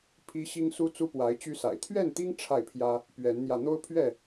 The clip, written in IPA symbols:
pʰ i˦ ɕ i˦ ŋ s u˦ t͡s u˦ p w a˨˦ ɪ̯ t͡ɕ y˦ s a̰˨˩ ɪ̯ t̪ʰ ɥ ɛ˥˨ n t̪ i˦ ŋ ʈ͡ʂʰ a˥˨ ɪ̯ pʰ j ä˦ | p ɥ ɛ˨˦ n n̪ j ä˧ n̪ o˦ ʊ̯ pʰ ɥ ɛ˥˨

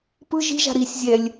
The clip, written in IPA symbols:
p ɯ ʒ i̤ ʒ a̤ ɾ i sʲ zʲ ɛ lʲ

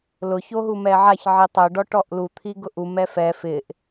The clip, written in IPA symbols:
l ʊ ç o ɦ u m ɛ ʕ a ç ʕ i tˤ ʊ ɖ ɔ ʈ ɔ ʔ l u t̪ʰ i ɡ ʊ ʔ u m ɛ f ɛ f ɪ ʔ

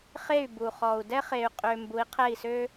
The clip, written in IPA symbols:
χ e˥˩ y̯ b u˩ χ ɔ˩ u̯ d ɛ˥ χ e˧ y̯ qʼ ø˧ m b u˩˥ i̯ qʰ ɛ˥˩ i̯ s ø˥

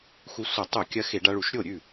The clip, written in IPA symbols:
x u˧ sʷ ɐ˧˩˧ tˤ u˧˩˧ kʲ ɐ˧ x e˧˩˧ ɖ a˧ ɭ u˧˩˧ ʃ ɾʲ o˥˩ ɾʲ ʉ˥˩

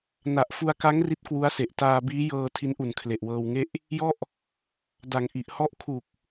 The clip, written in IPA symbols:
n a˨˩ ʔ f u˧ a̯ k a˦˥ ŋ r i˦˥ t̚ k w u˦˥ a̯ s e˨˩ ʔ t aː˧ b iː˦˥ j ɤː˧ tʰ i˦˥ n ʔ u˨˩ n kʰ l e˨˩ ʔ w ɤː˧ w ŋ e˥˩ ʔ | j ɔ˥˩ ʔ | d a˨˩ ŋ ʔ i˨˩ ʔ h ɔ˦˥ ʔ kʰ u˨˩ k̚

